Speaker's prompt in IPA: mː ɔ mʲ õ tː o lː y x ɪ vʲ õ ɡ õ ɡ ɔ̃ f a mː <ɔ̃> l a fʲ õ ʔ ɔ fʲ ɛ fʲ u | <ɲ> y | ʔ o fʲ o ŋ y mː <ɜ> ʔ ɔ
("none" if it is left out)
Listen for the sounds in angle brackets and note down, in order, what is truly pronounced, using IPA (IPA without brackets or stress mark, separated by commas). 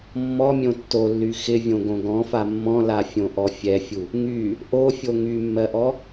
ɔ̃, ŋ, ɜ